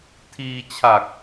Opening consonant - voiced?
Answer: no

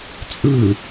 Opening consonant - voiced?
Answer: no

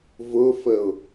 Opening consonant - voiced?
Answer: yes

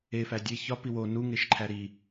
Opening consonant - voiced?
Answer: no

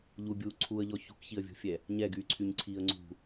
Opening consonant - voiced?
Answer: yes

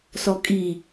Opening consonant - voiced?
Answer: no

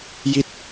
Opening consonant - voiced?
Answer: yes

